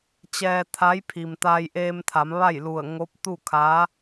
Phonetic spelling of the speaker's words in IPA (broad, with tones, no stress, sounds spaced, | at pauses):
t͡ɕ ɛː˧ t̪ʰ a˧˥ j pʰ i˩ m t̪ aː˧ j ʔ eː˧ m t̪ʰ a˩˧ m ʋ a˥˨ j l u˧˩ ə̯ ŋ o˧˥ p̚ t̪ u˥˨ kʰ a˧˥